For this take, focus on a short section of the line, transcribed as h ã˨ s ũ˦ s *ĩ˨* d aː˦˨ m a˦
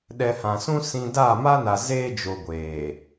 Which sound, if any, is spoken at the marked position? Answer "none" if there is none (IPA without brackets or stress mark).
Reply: ĩ˨